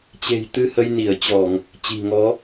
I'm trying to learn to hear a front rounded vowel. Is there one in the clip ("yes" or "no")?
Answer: no